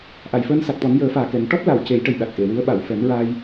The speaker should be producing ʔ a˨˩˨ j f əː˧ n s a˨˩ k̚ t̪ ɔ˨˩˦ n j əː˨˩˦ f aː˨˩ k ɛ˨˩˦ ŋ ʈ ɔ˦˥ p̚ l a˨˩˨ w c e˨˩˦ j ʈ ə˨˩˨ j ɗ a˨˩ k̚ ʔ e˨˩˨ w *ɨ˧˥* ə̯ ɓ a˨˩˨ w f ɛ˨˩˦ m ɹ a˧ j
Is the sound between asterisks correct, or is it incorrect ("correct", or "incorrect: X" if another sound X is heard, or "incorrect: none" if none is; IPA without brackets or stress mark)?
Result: correct